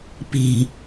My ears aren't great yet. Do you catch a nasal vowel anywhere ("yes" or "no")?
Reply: no